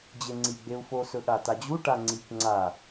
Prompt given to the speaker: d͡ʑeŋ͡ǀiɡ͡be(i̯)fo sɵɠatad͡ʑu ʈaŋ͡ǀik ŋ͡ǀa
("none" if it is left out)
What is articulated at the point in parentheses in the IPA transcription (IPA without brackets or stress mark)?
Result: u̯